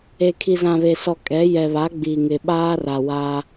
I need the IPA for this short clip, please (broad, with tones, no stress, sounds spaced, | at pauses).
e˨ kʰ i˨ z ã˨ β e˨ s ɔ˨ kʼ ɛ˨˦ j ɛ˨ β a˨˦ ɡ͡b iː˨ ŋ ɪ˨ ɓ aː˦ r a˨ w aː˦